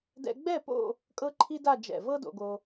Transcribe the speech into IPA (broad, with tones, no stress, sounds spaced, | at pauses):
d ɛ̰˧ ɡ͡b ɛ˥˧ p o̰˥˧ | kʼ ɤ˥ ǃʰ i˥ d a˥˧ d͡ʒ ɛ̰˧˩ v ɤ˥ d o̰˧ ɡ o˧